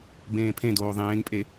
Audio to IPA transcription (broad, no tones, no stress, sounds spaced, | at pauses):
b ẽː pʰ ẽ d oː ðˤ ẽː ŋ pʼ e